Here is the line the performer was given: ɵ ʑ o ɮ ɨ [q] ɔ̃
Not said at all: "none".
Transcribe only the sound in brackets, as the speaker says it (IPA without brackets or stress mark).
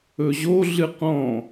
q